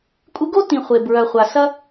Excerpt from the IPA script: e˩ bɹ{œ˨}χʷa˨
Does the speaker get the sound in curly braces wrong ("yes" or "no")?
no